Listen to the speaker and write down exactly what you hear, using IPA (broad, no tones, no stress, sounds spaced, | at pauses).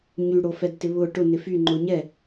ɲ y ɽ o f ɛ d t ɪ β ʊ ʈ ʊ n ɪ f y ŋ͡ǃ ʊ ɲ ɛ